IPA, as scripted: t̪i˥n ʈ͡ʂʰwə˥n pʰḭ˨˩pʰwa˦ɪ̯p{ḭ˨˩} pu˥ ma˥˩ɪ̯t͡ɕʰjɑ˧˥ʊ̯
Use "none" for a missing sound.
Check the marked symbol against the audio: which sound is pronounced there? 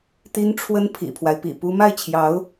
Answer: ḭ˨˩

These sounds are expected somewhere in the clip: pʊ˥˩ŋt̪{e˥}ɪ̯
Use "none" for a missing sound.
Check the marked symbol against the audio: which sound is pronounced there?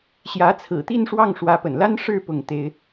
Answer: e˥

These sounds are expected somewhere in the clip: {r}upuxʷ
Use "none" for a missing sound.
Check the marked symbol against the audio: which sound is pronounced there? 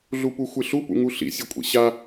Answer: ɮ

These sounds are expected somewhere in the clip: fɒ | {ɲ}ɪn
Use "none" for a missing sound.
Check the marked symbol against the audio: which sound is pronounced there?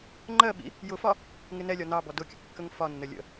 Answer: ŋ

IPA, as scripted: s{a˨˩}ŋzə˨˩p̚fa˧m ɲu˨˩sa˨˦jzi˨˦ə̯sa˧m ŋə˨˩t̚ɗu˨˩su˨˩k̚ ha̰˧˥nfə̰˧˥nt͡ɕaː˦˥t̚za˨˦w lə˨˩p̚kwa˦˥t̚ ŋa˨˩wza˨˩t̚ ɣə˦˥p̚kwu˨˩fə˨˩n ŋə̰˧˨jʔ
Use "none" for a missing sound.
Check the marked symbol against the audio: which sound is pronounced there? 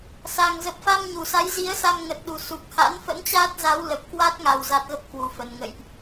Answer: a˨˩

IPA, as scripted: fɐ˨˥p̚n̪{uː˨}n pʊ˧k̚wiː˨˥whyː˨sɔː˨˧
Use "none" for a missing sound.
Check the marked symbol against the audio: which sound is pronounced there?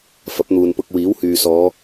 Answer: uː˨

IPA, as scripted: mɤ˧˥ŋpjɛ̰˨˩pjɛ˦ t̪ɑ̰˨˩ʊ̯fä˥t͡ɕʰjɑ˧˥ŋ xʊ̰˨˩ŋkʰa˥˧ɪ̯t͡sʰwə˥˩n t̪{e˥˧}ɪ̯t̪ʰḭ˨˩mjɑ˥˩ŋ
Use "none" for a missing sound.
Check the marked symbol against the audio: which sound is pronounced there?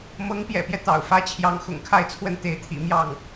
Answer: e˧˥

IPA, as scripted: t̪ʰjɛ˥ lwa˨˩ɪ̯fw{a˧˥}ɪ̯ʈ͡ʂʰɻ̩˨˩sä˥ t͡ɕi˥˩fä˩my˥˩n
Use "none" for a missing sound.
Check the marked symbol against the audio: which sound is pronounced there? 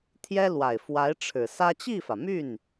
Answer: a˧˥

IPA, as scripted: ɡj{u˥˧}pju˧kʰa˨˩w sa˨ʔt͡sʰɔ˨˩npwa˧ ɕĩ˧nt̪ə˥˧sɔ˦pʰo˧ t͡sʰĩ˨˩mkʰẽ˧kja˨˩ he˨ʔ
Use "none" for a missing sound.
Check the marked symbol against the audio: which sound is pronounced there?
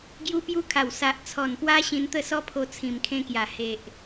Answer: u˧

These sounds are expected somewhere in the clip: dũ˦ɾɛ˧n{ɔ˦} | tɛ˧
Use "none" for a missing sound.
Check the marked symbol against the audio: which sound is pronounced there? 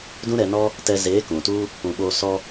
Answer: ɔ˦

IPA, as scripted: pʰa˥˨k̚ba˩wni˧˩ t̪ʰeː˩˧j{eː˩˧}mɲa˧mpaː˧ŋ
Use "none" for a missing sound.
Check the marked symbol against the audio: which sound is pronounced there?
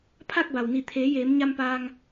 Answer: eː˩˧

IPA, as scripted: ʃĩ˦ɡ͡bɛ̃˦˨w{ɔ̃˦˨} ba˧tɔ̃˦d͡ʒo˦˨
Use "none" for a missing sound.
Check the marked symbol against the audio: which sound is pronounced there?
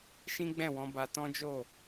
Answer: ɔ̃˧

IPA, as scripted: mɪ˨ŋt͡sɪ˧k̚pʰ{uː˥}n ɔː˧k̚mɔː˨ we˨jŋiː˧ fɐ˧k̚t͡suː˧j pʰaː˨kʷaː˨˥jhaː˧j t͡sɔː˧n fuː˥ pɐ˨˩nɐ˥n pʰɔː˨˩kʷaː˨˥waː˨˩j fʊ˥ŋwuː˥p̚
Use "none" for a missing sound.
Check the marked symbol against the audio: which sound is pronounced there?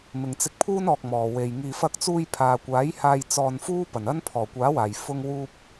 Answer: uː˥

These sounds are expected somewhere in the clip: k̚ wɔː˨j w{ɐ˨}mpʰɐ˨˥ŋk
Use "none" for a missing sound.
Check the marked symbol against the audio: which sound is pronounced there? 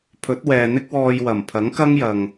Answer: ɐ˨˩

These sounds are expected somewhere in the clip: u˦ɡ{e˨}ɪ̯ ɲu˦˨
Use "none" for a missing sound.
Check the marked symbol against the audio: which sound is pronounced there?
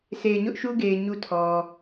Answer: e˨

